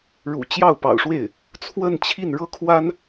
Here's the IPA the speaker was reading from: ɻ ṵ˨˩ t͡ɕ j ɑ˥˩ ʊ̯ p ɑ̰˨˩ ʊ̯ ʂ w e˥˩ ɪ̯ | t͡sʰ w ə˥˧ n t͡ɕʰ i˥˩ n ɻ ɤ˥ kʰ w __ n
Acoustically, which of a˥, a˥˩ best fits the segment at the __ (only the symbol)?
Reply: a˥